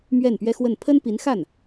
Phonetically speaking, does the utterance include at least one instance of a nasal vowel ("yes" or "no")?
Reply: no